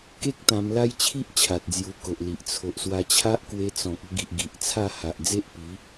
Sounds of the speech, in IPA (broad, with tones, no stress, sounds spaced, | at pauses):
k e˦ k̚ t̪ ã˧ m l a˦ j t͡ɕʰ i˦ ʔ t͡ɕʰ a˨ t̚ d͡z j u˧ k o˨ ʔ l i˨ ʔ t͡sʰ o˨ ʔ s w a˧ t͡ɕʰ a˦ ʔ k w e˧ t͡s ɔ̃˨ k̚ ə˧ ɡ i˨ ʔ ɡ i˨ ʔ t͡sʰ a˥˧ h a˨ ʔ d͡z e˦ ʔ p i˨˦